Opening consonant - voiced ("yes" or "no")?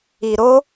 yes